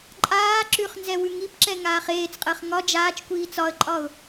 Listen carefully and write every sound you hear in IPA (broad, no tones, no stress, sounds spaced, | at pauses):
ǃʼ aː ǁ ʉ χ n z ɛ w ʉ ŋ i p ǁ ɛ ŋ aː χ eː t͡s qʼ əː χ ŋ ɒ d͡ʒ aː t͡ʃ kʷ iː t͡s ɒ ə̯ ǃʼ ɒ ʊ̯